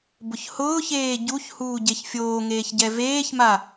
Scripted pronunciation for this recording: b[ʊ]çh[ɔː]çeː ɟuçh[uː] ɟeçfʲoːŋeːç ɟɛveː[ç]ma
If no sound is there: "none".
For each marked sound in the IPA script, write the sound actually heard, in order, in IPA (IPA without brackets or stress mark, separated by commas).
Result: ʊ, ʊː, uː, ç